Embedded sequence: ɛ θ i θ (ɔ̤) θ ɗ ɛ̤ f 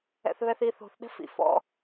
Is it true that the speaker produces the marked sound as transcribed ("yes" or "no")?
no